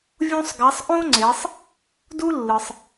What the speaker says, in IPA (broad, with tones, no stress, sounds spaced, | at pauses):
vʲ ũ˥ sˤ ɡ a˧˥ sˤ ʔ õ˥ ŋ͡ǀ e˩˧ sˤ | d u˥ lː ɯ˩ sˤ